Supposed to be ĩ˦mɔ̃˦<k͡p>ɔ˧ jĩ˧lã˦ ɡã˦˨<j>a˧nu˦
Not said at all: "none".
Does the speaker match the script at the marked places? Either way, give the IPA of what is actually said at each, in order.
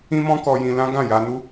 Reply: k, j

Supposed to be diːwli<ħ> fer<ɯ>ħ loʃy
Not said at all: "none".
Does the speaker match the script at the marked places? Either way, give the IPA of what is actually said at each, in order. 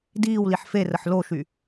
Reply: ħ, ə

